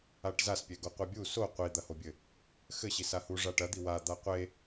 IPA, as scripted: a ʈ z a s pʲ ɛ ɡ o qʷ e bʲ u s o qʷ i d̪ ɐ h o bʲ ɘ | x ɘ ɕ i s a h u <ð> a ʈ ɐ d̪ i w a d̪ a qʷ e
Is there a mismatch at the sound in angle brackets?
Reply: yes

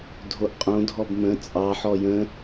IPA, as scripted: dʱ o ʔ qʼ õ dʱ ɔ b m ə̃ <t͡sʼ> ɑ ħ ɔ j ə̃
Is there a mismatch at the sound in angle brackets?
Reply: no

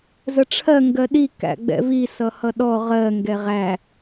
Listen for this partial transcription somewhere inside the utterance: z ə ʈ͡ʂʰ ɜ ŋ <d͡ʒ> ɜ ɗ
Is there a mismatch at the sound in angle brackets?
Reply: yes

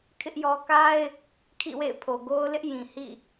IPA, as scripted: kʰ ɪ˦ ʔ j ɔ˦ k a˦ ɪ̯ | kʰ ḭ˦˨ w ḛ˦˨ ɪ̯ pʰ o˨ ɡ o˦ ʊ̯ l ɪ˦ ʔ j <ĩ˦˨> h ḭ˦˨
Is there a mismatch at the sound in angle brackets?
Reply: yes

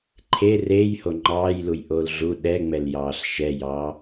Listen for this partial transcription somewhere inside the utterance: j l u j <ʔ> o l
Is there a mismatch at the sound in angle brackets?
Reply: no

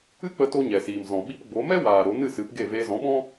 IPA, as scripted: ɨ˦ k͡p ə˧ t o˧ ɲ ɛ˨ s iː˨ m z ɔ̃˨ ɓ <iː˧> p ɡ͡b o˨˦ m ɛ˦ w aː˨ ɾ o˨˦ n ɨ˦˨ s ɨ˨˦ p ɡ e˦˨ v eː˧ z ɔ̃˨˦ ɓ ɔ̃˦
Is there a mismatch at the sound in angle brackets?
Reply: yes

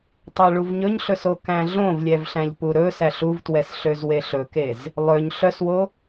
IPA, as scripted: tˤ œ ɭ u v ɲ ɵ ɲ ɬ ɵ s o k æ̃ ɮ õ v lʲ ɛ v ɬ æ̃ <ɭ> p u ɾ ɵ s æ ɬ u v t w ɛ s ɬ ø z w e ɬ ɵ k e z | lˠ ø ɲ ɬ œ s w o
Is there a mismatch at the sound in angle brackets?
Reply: yes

